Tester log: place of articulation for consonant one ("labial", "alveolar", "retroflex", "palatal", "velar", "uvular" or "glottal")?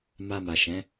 labial